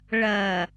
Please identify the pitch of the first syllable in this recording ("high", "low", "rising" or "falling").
low